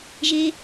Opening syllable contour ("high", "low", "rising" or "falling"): high